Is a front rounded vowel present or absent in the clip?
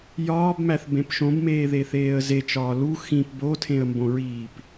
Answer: absent